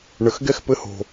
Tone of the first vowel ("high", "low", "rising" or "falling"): low